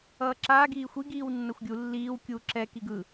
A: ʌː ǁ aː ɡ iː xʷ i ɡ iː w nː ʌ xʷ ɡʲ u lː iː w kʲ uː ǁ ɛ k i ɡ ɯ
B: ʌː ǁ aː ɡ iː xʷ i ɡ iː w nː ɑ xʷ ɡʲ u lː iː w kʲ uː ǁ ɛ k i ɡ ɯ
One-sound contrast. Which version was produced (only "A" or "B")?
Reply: A